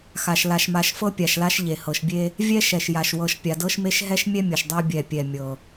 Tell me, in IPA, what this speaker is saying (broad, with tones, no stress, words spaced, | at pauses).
xa˨ʃ la˨ʃma˨ʃ fɤ˦pʲa˨ʃla˦ʃ ʎe˨hɤ˨ʃbʲe˦ | vʲɛ˦ʃɛ˨ʃja˨ʃ wɤ˨ʃpʲa˨dɤ˦ʃme˦ʃ ɦɛ˦ʃmʲɛ˦ mʲɤ˨ʃdˤa˦ bʲɛ˦˨pʲɛ˦˨ mʲɤ˨